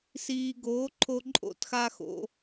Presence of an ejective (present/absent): present